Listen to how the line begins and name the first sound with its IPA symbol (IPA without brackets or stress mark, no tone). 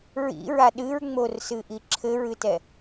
ɹ